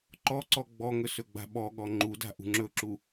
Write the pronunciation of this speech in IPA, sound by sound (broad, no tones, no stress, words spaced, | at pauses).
ǃɔǀɔ ɡ͡bɔŋɵ sɵɡ͡ba̤ɓɔɠɔ ŋ͡ǃuda̤ ʔṳŋ͡ǁɵǁu